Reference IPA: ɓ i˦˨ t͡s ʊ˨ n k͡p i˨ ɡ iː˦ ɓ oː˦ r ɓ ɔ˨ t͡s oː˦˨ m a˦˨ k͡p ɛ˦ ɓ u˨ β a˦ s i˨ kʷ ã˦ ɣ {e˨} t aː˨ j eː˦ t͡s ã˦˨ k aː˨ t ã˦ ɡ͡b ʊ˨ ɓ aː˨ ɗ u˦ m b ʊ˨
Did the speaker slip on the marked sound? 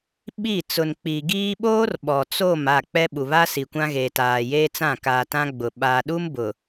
yes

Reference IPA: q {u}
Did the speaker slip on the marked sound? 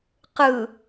yes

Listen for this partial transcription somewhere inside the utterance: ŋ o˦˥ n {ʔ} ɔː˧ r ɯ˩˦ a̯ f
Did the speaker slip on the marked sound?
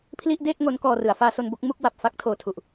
yes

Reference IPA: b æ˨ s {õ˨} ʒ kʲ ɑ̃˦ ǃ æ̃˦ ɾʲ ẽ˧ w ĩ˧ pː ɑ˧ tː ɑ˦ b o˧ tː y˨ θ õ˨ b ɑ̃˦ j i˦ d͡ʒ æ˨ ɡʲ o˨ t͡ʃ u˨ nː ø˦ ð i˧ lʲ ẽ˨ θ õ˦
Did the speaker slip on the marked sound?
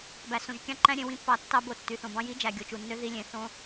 no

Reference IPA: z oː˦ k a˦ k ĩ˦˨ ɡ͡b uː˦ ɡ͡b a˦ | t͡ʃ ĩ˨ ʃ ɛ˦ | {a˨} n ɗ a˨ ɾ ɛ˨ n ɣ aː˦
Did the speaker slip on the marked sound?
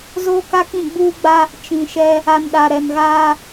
no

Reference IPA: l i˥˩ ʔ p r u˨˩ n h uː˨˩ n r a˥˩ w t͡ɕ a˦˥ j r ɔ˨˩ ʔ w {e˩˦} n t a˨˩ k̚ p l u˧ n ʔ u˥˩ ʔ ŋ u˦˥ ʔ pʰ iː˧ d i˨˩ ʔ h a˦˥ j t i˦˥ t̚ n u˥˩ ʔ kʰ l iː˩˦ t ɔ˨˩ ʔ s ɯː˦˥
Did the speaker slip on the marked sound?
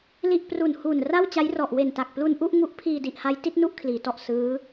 yes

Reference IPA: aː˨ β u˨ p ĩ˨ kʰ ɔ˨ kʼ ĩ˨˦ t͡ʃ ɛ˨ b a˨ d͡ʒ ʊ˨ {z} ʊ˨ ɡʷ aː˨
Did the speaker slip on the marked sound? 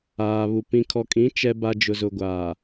no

